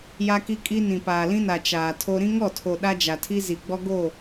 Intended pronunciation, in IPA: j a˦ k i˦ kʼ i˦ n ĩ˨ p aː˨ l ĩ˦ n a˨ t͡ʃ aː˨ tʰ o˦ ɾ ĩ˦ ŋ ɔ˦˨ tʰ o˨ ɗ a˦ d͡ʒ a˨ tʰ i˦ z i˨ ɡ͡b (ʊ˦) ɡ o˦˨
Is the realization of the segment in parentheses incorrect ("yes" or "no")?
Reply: yes